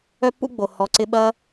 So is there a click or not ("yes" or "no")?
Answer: yes